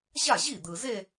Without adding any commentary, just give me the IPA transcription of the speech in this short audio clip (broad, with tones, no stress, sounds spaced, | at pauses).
ʑ a˥˩ ʑ i˥˩ d̪ ɯ˨ z e˥˧